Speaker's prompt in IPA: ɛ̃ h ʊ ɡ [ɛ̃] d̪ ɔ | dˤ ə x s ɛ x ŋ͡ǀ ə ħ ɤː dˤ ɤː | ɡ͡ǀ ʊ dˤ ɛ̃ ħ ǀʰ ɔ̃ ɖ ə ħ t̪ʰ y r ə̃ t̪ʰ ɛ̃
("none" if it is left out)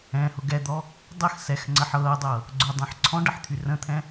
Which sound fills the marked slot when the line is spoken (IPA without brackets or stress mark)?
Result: ɛ